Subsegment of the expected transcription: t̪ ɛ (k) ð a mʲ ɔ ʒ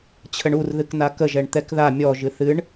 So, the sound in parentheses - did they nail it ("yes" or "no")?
yes